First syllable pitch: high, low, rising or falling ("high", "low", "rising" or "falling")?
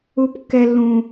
high